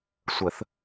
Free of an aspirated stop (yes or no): yes